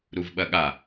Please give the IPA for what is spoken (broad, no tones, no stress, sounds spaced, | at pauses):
ɾ u v ɓ ɐ ɠ a